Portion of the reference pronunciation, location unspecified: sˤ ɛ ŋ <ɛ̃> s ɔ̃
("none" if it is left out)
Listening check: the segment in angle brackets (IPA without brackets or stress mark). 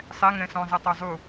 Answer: ɛ̃